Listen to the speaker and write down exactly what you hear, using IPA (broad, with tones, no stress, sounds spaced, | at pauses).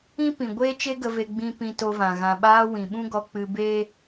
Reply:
ĩ˦ p ĩ˨ ɡʷ eː˦ t͡ʃ e˦ ɡ ə˧ v e˧ ɡ͡b ĩ˧ p ĩ˧ t o˧ v ã˨ ɣ ã˨ ɓ aː˧ w ĩ˨ ɓ ũ˦ ɡ ɔ˧ k͡p ɨ˧ b eː˦